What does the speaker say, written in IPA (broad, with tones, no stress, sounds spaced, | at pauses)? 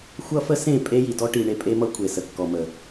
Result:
xʷ ʌ˦ f ə˦ s ẽ˦˨ pʼ e˦ j i˨ d ɔ˦ ʈ i˨ ɳ e˦ pʼ e˦ m ʌ˦ kʷʰ e˨ s ə˨ kː ɔ˨ m ə˨